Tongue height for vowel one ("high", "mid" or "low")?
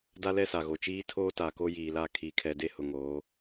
low